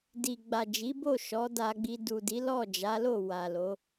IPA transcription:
di˨ɡ͡ba˨d͡ʒi˨˦bo˦˨ ʃɔ˨˦da˧ɡ͡bi˧ du˨di˨˦ lɔ˦˨d͡ʒa˨˦lo˦˨ wa˨lo˨˦

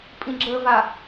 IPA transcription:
pʼĩɡ͡ǁəva

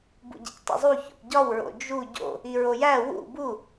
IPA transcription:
bṵɟḛctˤṵzˤu ço̰pɟɒw ɹo̰d͡ʒu ɟo̰ | iɹojæ wṵ bu

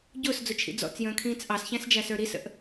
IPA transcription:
ɟʊːsd͡zʊt͡ʃʰḭ d͡zɔ̰t͡sjə̃ːkʰĩːt͡s ʔɑsçæ̃sd͡ʒæsə˞ ɾisə̰ʔ

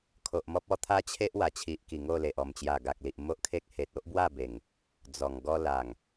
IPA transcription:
kʰo˨ʔmɔ˦p̚ɔ˧ t̪ʰa˦t͡ɕʰe˦ʔ wa˨˩t͡ɕʰi˨ʔki˨˩ ŋo˥˧le˨ʔ ɔ˨˩mt͡ɕja˨˩ɡa˨k̚li˨ʔ mo˦ʔkʰe˦k̚ he˨t̚o˦ʔbwa˥˧ be˨˩ŋ | d͡zɔ˨˩ŋɡɔ˦ la˨˩ŋ

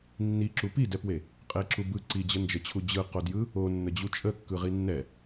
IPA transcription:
nːiǁu pidɛpwe | qʼeǁubɯ ǀid͡ʑənd͡ʒət͡ɕʰu d͡ʑɯqodjɯ | onːəd͡ʑu t͡ʃʼəkːɯ ʁinːɛ

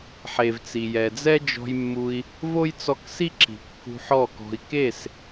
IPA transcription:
ħe˨vt͡si˨jɛ˨d͡zɛ˦ d͡ʒɔ̤˧jmːu˧i̯ | vo˦jt͡sɔ˧ksi˦ ǁi̤˨ kːṳ˧ħɔ˦˨kɔ̤˧i̯ ke˦˨s

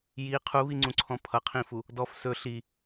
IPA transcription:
ji qʰuβiŋ͡ǀũǀʰɔ̃ pʰʌqʰĩfu | dɔf sɵ ɬi

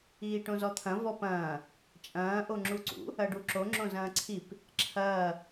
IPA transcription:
iːʈõzɔt̪ʰɐ̃ vɔpɐ̃ː | t͡ʃʼɐ̃ː ʔoŋ͡ǁuǀṵ | ɐɖuǁo ŋ͡ǁõzɐ̃ːǀʰip | ǁʰɐː

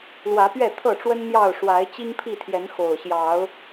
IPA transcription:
lwä˨˦pɥɛ˥˨t̪ʰɤ˥˨ʈ͡ʂwə˦n n̪jɑ˥˨ʊ̯ ʂwa˨˦ɪ̯t͡ɕi˦ŋpʰi˥˨t̪ʰjɛ˨˦n xo˨˩ʊ̯ɕjɑ˨˦ʊ̯

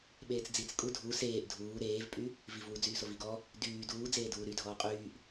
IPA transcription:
ɓeːt͡sd͡zit͡s kʼudʱu seːʔ dʱuː ɾeːvpʼy | vivwu d͡zyːsoviɡɔ | dyː duːd͡zeːduː ɾydʱɔː qʼyːʔ

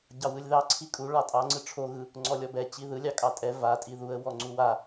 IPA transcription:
ɟɑwɯlʲðɑ ǀʰikʼu ɭɑtʼɑ ŋ͡ǀɯʈ͡ʂʰo ɣɯ | ŋ͡ǀɔlʲɔbɛ t͡ɕiðɯ lʲɑkʼɑtʼɛ va tʼiðuə̯ wɔŋ͡ǀuwa

